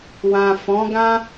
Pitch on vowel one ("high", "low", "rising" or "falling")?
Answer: low